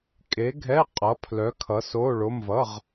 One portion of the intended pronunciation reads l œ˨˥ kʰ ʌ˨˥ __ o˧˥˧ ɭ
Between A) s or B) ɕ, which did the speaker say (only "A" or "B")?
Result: A